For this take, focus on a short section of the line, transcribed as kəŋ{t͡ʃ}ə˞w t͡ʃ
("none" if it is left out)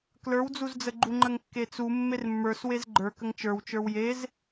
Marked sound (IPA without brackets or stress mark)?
t͡ʃ